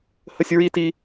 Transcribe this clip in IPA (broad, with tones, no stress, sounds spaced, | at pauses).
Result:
h ə˥ sʲ ɹ i˥ t i˥